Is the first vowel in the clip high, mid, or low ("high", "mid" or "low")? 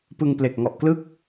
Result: high